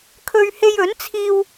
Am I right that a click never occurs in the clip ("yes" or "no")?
yes